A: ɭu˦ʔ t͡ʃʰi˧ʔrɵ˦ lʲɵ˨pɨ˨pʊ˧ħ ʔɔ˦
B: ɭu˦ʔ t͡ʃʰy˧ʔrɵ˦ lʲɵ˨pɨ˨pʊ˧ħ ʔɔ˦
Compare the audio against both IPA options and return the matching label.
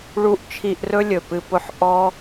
A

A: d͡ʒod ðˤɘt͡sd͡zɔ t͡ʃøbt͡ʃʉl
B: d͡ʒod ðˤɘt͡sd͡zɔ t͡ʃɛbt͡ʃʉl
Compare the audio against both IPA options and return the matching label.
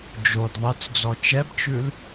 B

